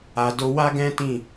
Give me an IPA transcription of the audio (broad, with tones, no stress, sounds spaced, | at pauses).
a˨ d o˧ w a˦ ɡ ɛ̃˦ t ĩ˦˨